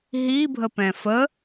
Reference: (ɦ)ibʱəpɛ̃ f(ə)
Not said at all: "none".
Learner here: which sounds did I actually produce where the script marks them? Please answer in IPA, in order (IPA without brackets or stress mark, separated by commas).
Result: ɦ, ə